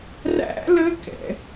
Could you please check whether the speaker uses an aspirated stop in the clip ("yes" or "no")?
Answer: no